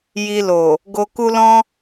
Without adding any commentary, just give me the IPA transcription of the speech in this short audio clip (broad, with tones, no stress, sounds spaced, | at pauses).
j i˧ l o˨ | ɡ o˦ k u˦ l ɔ̃˦